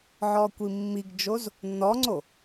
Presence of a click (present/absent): present